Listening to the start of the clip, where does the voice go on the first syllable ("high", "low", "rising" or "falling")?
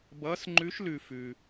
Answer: rising